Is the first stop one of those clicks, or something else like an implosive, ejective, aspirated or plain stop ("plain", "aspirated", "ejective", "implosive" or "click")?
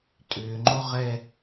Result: ejective